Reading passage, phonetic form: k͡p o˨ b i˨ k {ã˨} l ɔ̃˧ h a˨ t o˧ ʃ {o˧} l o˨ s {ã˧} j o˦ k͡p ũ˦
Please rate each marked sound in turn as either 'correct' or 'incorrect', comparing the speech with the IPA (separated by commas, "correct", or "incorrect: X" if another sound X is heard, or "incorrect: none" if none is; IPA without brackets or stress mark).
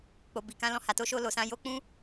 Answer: incorrect: ã˧, correct, correct